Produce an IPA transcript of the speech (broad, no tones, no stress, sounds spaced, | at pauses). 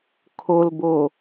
kʰ o l b o